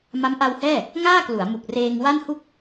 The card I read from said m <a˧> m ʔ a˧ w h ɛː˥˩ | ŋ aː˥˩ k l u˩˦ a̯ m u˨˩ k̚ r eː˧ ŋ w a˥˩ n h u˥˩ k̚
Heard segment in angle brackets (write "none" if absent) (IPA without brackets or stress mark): a˦˥